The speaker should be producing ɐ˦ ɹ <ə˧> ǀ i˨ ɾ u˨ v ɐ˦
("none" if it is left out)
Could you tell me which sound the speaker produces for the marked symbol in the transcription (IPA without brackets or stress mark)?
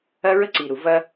ə˦